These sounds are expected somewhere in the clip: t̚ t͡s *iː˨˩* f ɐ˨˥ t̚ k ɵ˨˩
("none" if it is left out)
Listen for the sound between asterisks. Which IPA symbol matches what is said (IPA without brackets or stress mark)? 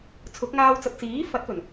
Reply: iː˨˥